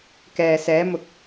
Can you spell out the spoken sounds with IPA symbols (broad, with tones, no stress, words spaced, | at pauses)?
kɛː˨sɛː˨˧mʊ˨k̚